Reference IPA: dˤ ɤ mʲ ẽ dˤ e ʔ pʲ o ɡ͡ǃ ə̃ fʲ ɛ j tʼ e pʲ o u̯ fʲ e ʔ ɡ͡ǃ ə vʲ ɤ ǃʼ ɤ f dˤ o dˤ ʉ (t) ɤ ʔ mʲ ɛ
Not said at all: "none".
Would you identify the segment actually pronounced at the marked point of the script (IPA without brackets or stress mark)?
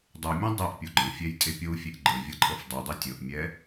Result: tʲ